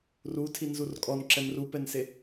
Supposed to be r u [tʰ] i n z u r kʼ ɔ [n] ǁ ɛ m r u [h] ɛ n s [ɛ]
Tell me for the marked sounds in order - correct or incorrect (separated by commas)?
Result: correct, correct, incorrect, incorrect